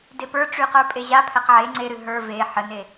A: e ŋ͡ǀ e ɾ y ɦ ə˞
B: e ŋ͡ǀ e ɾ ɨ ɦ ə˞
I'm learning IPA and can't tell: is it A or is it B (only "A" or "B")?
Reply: B